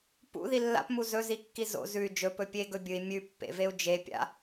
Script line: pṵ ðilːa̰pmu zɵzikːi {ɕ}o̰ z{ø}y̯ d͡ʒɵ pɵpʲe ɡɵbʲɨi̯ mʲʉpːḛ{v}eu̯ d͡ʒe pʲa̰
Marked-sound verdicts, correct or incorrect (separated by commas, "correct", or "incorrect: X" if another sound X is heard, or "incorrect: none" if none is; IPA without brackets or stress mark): incorrect: z, incorrect: ʉ, correct